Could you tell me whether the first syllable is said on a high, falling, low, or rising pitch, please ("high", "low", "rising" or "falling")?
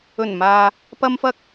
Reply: low